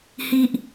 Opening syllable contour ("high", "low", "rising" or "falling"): high